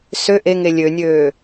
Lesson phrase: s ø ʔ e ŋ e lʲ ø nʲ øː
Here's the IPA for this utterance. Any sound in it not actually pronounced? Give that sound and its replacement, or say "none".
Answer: none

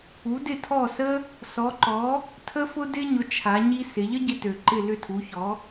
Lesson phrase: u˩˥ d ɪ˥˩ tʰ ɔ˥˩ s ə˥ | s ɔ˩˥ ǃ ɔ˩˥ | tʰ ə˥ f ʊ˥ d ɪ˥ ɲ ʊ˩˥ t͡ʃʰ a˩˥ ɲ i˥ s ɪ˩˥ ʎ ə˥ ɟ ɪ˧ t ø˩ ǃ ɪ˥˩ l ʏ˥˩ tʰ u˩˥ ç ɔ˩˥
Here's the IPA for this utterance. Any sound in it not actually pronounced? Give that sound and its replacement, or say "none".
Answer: none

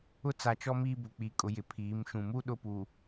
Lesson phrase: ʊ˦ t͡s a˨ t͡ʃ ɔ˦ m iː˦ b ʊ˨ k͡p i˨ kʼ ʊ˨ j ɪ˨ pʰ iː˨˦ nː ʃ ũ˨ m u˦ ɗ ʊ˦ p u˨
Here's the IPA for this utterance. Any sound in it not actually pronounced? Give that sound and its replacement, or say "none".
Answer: nː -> m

